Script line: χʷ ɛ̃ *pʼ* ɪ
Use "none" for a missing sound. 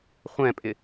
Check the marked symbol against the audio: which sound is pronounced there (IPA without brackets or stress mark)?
pʼ